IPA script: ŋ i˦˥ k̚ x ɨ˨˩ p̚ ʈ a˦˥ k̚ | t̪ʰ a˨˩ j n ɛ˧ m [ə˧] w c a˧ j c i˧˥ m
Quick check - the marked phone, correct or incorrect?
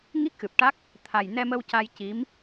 correct